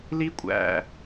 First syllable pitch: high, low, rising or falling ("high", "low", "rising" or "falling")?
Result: high